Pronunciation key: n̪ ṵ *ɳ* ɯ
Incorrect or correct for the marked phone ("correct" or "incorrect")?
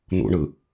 correct